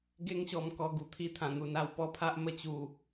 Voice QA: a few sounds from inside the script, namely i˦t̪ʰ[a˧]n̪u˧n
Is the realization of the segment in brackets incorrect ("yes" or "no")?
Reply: yes